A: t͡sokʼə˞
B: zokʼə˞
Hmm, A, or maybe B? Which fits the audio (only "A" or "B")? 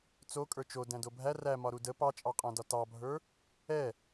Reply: A